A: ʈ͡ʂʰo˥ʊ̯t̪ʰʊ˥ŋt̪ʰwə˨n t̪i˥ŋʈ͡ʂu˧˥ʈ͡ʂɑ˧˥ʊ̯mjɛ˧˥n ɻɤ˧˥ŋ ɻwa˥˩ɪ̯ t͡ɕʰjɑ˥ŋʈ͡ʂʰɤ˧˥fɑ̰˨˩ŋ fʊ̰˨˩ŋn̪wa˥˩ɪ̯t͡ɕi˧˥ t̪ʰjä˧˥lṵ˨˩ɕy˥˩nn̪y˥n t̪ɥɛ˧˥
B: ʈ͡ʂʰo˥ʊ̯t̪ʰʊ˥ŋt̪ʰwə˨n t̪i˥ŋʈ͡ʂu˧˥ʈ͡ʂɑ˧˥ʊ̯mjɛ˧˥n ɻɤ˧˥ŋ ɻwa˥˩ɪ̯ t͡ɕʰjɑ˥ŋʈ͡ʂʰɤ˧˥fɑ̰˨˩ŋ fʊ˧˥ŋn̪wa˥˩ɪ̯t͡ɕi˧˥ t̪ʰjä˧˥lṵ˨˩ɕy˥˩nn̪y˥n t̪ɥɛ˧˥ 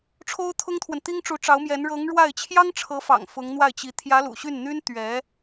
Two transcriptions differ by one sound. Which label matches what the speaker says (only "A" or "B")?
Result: B